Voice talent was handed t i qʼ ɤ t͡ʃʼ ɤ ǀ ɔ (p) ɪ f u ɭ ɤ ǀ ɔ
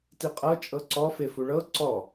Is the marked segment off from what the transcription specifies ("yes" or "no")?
yes